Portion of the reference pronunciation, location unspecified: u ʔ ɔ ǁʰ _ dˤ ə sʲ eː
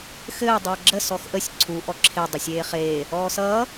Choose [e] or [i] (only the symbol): e